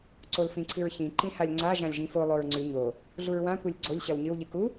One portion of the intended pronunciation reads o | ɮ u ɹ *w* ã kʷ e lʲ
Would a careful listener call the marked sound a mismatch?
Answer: no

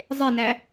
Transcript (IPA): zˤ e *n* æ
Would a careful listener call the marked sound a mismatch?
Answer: no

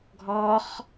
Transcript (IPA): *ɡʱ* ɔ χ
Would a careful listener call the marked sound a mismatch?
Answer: no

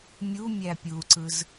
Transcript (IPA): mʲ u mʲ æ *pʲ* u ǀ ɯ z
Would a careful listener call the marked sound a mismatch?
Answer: no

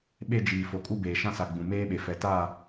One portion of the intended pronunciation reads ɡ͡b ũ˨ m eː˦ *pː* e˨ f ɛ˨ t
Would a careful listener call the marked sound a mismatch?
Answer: yes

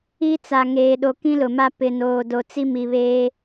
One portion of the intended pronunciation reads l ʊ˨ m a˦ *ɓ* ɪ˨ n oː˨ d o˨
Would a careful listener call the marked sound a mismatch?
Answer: yes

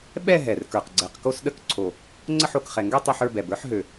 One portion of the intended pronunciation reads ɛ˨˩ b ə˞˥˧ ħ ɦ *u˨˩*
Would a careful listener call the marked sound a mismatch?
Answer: yes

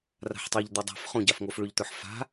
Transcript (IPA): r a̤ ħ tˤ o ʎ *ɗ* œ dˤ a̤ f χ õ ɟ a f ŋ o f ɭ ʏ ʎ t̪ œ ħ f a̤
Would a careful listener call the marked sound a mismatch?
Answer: yes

